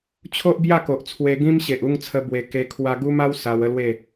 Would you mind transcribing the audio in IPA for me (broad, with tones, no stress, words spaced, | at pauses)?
t͡ɕʰo˦ʔbja˥˧ko˨ʔt͡sʰwe˧ ɡĩ˦mɕe˨ʔu˥˧ŋt͡sʰə˧ bwe˧ ke˧ kʰwa˧ɡu˦ma˦w sa˧wə˦lwe˥˧